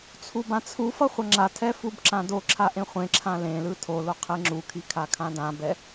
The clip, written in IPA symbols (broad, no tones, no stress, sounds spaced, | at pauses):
t͡sʰ u b ã t͡sʰ u f ʌ χʷ ʌ ŋ͡ǁ a tʰ ɛ f u b ǁ ã d o ǁʰ a ʔ ẽ χʷ ẽ ǁʰ ã l ẽ l ɯ tʰ o l o qʰ e ŋ͡ǁ u kʰ i kʰ a kʰ ã d ã b ɛ